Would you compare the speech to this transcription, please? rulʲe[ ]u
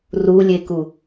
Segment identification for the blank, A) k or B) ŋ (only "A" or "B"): A